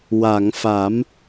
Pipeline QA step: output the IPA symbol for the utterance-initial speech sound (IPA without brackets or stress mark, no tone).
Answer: w